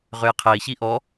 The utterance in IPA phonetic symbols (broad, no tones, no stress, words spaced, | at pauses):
ʁøjqʰɛi̯çi ʔɔ